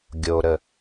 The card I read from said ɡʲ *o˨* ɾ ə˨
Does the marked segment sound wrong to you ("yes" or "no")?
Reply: no